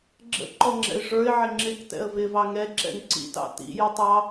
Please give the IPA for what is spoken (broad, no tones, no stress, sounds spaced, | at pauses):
ɡ͡ǁ ə̰ ǃ ɔ ŋ͡ǁ ɛ̰ ɪ̯ ʐ ə˞ ɪ̯ ʕ ɪ ŋ͡ǁ ɪ k t ɛ̰ ə̯ v ɪ v ɑ ŋ ɛ ǁ ɛ̰ ŋ ǀ ḭ t ɑ̰ t ḭ j ə tˤ ɑ